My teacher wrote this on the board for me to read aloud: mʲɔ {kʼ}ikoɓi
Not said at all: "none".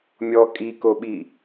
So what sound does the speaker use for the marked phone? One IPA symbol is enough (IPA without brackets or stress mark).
kʼ